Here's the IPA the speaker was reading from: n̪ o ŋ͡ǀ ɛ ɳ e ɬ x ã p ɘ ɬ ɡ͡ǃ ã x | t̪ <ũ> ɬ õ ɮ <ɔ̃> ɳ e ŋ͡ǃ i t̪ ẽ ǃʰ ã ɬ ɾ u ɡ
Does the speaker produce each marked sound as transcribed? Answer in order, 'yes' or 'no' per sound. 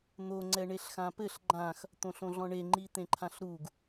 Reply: no, yes

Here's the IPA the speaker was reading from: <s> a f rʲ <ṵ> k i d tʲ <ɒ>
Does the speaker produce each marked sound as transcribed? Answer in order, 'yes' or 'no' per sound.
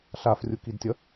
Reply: no, no, no

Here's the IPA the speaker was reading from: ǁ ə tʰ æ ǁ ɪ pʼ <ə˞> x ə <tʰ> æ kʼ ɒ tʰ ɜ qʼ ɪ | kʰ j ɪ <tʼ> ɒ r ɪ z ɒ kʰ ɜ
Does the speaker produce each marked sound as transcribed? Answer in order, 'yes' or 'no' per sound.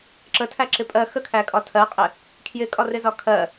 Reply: no, no, no

